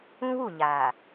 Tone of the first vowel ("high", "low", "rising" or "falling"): high